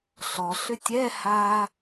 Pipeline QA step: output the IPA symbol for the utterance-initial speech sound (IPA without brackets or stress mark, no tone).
ɬ